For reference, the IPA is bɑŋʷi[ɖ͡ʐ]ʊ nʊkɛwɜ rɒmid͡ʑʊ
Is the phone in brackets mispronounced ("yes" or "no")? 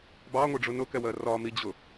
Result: no